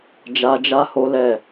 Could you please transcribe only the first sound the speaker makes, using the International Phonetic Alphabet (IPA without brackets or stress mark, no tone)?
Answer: d͡ʒ